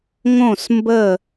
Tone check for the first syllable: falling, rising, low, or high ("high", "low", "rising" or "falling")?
falling